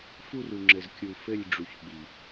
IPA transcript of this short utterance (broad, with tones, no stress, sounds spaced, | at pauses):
f u˦˨ r u˨ ŋ͡ǁ ɘ˨ z kʲ u˨ f ɘ˦˨ lʲ ɖ͡ʐ u˨ ç ɓ i˨